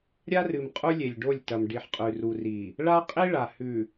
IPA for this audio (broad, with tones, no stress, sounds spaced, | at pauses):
ɾʲ a˦ r ɨ˨ m qʼ u˦ lʲ e˨ lʲ ɖ o˦˨ lʲ t ɐ˨ m ɖ i˨ ħ qʼ ʉ˨ r u˨ r i˨ | ɭ a˦ qʼ i˦ ɭ a˨ h ʉ˨